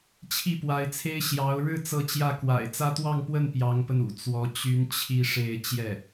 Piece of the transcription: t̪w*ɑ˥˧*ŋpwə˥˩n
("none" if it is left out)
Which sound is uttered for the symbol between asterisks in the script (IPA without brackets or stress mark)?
ɑ˥˧